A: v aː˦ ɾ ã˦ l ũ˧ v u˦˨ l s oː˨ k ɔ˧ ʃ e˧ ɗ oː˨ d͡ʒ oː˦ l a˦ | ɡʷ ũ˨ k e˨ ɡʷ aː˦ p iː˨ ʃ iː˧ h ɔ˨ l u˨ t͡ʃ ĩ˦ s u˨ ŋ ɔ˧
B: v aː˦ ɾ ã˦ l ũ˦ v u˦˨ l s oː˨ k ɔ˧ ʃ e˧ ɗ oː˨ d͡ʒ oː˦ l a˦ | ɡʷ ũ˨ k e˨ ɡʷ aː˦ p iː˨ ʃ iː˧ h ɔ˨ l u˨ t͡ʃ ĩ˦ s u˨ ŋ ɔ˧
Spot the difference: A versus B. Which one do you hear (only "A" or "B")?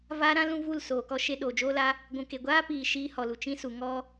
A